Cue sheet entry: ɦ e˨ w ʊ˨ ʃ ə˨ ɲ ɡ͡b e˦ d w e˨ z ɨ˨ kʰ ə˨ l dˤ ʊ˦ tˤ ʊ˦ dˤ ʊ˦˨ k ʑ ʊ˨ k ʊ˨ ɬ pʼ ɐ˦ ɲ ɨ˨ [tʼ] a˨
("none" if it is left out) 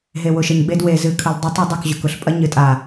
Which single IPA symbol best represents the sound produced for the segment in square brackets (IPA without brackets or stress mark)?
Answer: tʼ